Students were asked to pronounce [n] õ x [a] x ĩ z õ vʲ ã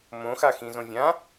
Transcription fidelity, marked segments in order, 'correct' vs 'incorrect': incorrect: m, correct

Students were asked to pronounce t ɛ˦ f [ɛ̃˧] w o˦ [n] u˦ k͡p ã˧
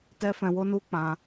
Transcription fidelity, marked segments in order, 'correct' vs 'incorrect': correct, correct

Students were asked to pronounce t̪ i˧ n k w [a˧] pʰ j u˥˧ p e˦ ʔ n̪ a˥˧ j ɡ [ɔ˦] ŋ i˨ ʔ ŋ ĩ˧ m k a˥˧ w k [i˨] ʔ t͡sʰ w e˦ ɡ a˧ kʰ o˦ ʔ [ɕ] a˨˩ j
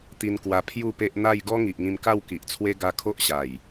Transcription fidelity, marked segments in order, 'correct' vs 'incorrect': correct, correct, correct, correct

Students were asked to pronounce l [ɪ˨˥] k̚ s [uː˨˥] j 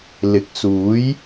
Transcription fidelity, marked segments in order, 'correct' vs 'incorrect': correct, correct

